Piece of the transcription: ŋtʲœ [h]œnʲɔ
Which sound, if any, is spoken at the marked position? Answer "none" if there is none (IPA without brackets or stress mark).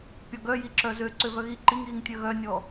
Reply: ɣ